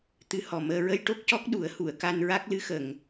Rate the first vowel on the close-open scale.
close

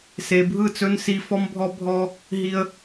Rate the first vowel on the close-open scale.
mid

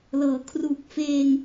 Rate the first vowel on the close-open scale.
mid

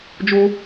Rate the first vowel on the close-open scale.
mid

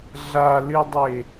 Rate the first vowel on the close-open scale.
open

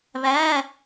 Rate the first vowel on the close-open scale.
open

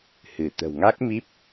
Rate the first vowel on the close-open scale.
close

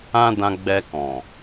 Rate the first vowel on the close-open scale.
open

